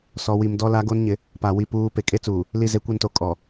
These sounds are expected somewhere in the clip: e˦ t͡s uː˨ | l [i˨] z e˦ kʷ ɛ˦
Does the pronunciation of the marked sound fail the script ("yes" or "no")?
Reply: yes